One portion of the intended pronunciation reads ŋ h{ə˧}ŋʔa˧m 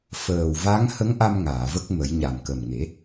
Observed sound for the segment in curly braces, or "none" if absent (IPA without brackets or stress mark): ə˧˥